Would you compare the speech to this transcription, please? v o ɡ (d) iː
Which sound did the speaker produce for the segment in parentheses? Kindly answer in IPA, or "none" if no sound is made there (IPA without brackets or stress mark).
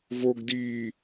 d